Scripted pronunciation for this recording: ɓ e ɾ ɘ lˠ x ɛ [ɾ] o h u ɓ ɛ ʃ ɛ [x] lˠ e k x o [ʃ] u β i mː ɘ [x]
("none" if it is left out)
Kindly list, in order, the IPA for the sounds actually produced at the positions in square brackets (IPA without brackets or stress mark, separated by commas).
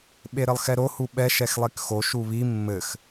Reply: ɾ, x, ʃ, x